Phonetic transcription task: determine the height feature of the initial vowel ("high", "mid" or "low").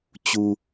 high